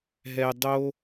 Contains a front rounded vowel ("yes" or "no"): no